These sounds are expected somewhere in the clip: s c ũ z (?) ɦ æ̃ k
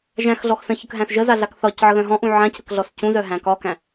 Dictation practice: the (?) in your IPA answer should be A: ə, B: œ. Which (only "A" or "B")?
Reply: B